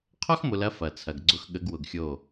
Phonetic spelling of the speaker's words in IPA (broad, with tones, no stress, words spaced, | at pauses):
qʰɔ˦xmʊ˨lɐ˨˦ fɐ˨t͡sʰɐ˨ɡɡ͡ǀʊ˦x ɠə˨˦ɡwʊ˨ɡxʲo˦˨